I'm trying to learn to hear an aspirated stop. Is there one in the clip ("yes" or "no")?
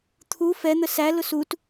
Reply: yes